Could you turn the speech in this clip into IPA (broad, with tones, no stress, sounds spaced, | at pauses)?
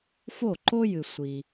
f o˥˩ ǃ o˥ j ɨ˨ sʷ i˨